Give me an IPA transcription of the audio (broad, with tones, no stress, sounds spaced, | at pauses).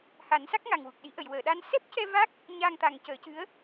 h a˨˩˦ n s a˦˥ k̚ ŋ a˨˩ ŋ w u˨˩ k̚ ɗ i˨˩˦ ʔ ə˨˩˨ j w əː˨˩˨ ɗ a˧ n s ɛ˦˥ p̚ c ɛ˧ v a˦˥ k̚ | ɲ aː˧ ŋ t̪ a˨˩ ŋ c əː˨˩˦ c ɨ˧˥ ə̯